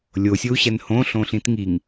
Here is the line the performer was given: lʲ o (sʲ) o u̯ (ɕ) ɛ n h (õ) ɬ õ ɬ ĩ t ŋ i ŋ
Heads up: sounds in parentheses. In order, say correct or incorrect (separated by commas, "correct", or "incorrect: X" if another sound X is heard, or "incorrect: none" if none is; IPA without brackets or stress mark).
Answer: correct, correct, correct